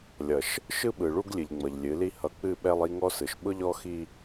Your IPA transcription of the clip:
lʲ ʌ˨ ʃ | ʃ ɯ˦ ɓ ɯ˨ ɭ u˦ ɡ lʲ ɨ˨ ʎ ŋ͡m ʌ˨ ʎ lʲ ɨ˨˦ l i˦ h ʌ˨ k͡p ɨ˦˨ ɓ ɛ˦ lˠ i˦ ŋ ɔ˦ s ɯ˨ ʃ ɓ ʊ˦ ʎ ɔ˦ x i˦

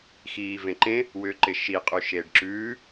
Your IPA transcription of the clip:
x iː v ẽ ǃ ẽ | w ʏː ǃ ɪ ʃ i qʼ ʉ ʃ eː ɖ ǁ ʉː

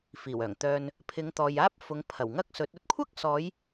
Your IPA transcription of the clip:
f iː˨˩ w œː˨˩ ŋ t̪ œː˨ n | pʰ ɪ˨˧ ŋ t̪ ɔː˨ j aː˥ p̚ f ʊ˨˧ ŋ pʰ ɐ˨˩ w ŋ ɐ˥ k̚ s ɵ˨˥ t̚ ɵ˥ t̚ kʷʰ ɐ˥ k̚ s ɔː˨˧ j

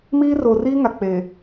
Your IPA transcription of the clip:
m iː˦ r o˨ r iː˦ ŋ a˨ k͡p eː˨

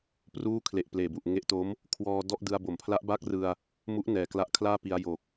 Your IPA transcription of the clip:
p r uː˥˩ kʰ l e˨˩ ʔ p l eː˨˩ b u˨˩ ʔ ŋ e˦˥ ʔ t o˦˥ m | kʰ w ɔː˧ d ɔ˥˩ ʔ d ɯ˧ a̯ b o˩˦ m pʰ l a˦˥ ʔ b aː˥˩ k̚ r ɯ˧ a̯ | m u˦˥ ʔ n ɛː˨˩ k l a˦˥ ʔ kʰ l aː˥˩ p i˧ a̯ j o˨˩ k̚

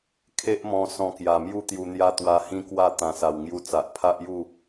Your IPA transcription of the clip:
kʰ e˦ ʔ m ɔ̃˧ s ɔ̃˧ k j a˨˩ m j u˥˧ t̪ j u˧ n̪ j a˦ t̪ w a˧ h ĩ˦ k w a˥˧ t̪ ã˨˩ s a˨˩ w ŋ j u˧ t͡s a˨ ʔ pʰ a˦ ʔ j u˥˧

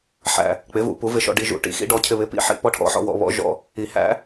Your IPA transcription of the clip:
ħ æ̰˧ | k͡p ɪ˨˥ v ṵ˨˩˦ p u˨˥ v ɪ˧ ʃ ɔ̰˧ ɖ i˧ ʒ ṵ˨˩˦ ʈ ḭ˨˥ x ḭ˨˥ ɖ ɔ˨˥ cʰ ɪ˧ β ɪ˨˥ p ḭ˨˥ ħ ḭ˧ p ɔ˧ ʈʰ ɔ̰˨˥ ħ ɔ̰˧ w ɔ̰˧ β ɔ̰˨˩˦ ʒ ɔ̰˧ | i˨˩˦ h æ̰˨˥

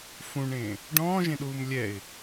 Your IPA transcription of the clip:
f ũ ɳ ẽ | ɖ ɔ̃ː ʒ ẽ ɗ uː m lʲ ɛ ɪ̯

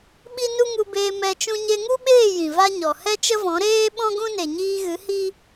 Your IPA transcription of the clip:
ɓ i˦ n u˦ ŋ u˧ b eː˧ m ɛ˧ t͡ʃ ũ˧ ɲ e˧ ŋ u˦ ɓ eː˦˨ j ĩ˨ v a˦ ɲ ɔ˨ h ɛ˦ t͡ʃ ə˦ v ɔ̃˨˦ ɾ eː˦ ɓ ɔ̃˦ ɡ ũ˦ n e˨ ɲ iː˧ ɣ ɨ˨˦ h i˦

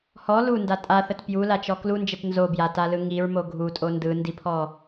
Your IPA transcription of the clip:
h ɔ l u n d a tʼ a θ ə t p j u l a t͡ʃ ɔ k l u n d͡ʒ ə t n z o b j a t a l ɯ ŋ i ɹ m o ɡʱ u tʼ o n d ɯ n d i pʰ ɔ

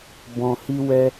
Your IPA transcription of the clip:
b ɔ̃˧ h i˦ w ɛ˦

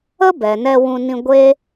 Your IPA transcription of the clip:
ə˦ b ɛ˨ n ɛ˧ w ũ˧ n ĩ˧ ɡʷ e˦

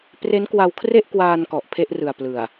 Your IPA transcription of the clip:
p r e˦˥ n k w a˧ w kʰ r e˥˩ ʔ k w aː˧ n k ɔ˨˩ ʔ pʰ e˥˩ ʔ r ɯ˨˩ a̯ p l ɯ˨˩ a̯

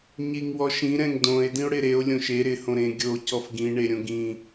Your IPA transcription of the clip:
ɲ i ŋ w ɔ ʃ ĩ ɾ ɛ̃ ŋ d õ e̯ d ĩ o̯ ɽ ɪ ɾ e o̯ lʲ õ ʃ e ɾ ɪ h õ ɾ ẽ ɡʲ o c ɔ f ɡ ĩ ɳ e ɾʲ õ ɡ ĩ

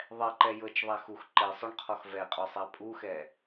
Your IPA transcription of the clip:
ðˤ ɛ ǃ ɛ j ɤ t͡ʃ ðˤ æ x u x ǃ e sˤ o ɳ qʰ ɔ x v ɛ qʼ ɔ sˤ æ pʼ u x ɛ

